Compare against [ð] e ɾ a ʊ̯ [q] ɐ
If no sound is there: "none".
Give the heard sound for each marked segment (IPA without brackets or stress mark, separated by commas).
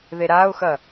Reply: ð, x